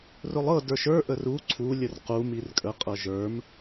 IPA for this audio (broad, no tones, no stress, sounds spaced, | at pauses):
r ʊ lˠ ɤ d ə˞ ʃ ə˞ ʔ ə r u ǀʰ u lʲ ə r q u m i r kʼ ə qʼ ɤ ʒ ə˞ m